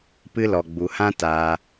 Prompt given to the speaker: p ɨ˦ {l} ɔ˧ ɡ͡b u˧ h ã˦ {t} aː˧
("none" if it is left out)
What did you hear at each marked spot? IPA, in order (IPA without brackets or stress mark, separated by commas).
l, t